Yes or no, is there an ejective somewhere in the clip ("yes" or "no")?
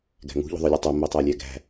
no